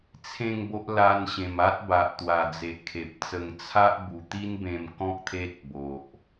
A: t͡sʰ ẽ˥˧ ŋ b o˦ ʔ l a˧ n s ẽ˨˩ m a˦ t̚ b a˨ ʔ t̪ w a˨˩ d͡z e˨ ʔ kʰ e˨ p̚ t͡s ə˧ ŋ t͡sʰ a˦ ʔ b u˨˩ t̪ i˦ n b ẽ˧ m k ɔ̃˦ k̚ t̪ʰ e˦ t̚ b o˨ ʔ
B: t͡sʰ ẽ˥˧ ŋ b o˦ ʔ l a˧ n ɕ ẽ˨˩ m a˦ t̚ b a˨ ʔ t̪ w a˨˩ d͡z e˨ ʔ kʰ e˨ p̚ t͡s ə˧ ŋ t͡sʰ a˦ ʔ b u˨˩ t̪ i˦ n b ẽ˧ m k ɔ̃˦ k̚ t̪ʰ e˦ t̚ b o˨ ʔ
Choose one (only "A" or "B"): B